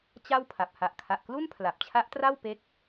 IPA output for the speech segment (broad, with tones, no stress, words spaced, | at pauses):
t͡ɕa˥˩w pʰa˨˩p̚ ha˨˩ʔkʰa˨˩ʔklu˥˩n pʰla˨˩p̚t͡ɕʰa˦˥ʔtra˥˩w pe˦˥k̚